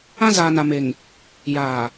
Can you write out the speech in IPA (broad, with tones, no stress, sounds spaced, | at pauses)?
ã˦ z aː˨ n a˨ m e˨ ŋ | j aː˨